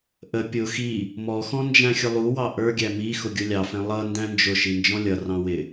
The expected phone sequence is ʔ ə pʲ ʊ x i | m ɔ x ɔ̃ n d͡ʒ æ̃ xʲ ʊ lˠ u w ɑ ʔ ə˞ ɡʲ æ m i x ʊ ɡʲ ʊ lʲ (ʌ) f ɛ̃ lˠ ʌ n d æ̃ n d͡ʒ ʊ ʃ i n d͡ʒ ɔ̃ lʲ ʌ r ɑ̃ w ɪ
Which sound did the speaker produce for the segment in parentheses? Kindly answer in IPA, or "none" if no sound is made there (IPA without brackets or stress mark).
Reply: ɑ